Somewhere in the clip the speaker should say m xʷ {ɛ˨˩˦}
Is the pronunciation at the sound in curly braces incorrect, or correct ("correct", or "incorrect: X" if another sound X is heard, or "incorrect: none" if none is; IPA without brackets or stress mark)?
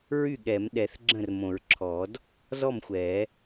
correct